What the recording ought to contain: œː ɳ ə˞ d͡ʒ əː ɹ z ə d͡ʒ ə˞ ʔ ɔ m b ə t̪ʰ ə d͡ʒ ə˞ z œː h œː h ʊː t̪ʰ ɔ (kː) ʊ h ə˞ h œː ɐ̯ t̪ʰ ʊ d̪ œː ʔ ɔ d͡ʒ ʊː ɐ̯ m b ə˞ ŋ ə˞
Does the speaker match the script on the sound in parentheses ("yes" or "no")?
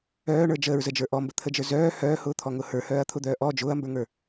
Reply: no